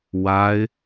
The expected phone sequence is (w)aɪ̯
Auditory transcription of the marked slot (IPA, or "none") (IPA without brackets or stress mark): w